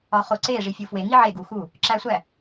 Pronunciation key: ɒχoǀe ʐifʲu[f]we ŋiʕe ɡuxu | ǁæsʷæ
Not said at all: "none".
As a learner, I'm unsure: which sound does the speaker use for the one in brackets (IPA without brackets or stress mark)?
f